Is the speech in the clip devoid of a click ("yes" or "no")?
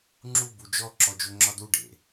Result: no